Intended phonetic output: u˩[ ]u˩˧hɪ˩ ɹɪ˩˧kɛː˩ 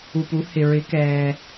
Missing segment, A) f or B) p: B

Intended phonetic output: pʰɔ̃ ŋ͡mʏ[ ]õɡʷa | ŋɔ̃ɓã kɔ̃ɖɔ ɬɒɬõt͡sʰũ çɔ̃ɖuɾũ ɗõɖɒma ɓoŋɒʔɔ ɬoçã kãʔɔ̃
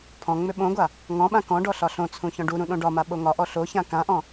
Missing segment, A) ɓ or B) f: A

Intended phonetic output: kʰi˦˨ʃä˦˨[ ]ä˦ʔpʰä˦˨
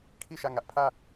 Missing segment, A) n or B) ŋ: B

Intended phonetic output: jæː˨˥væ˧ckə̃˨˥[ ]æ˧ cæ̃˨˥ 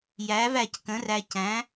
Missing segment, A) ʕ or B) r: B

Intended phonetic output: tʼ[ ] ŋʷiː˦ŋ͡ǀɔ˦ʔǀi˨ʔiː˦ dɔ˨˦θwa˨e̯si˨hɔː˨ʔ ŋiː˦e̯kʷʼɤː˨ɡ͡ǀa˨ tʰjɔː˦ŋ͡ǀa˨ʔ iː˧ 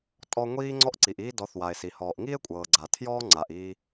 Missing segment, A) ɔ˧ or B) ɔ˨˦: A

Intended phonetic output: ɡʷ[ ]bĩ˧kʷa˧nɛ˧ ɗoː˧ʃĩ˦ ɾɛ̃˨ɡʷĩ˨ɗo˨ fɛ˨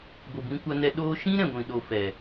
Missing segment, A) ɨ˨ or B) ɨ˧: A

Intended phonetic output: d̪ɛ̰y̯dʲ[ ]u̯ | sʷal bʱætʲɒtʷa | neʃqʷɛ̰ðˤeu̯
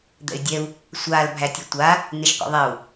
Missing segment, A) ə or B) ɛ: B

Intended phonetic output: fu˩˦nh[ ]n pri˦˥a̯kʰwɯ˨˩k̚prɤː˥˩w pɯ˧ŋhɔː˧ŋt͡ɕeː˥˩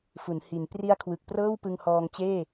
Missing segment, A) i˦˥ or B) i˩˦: B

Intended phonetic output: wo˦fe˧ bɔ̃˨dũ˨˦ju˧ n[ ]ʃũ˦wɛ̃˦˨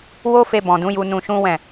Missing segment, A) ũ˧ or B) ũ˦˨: A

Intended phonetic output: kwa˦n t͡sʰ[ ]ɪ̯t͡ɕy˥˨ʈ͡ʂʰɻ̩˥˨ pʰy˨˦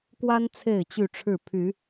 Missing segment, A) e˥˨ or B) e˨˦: A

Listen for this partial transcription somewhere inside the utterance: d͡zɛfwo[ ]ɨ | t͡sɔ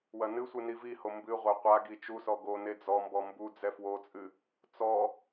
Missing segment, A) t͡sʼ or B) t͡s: A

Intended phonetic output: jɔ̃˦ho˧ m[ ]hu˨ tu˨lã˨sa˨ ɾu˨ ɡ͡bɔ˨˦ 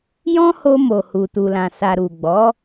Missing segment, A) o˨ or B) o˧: A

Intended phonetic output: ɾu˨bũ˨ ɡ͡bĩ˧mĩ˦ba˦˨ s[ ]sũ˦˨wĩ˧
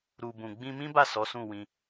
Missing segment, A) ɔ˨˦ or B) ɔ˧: A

